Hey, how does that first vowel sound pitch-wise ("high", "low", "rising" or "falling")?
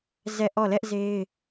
falling